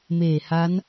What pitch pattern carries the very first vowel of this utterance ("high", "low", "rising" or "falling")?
low